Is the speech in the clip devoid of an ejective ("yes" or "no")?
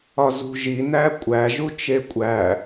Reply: no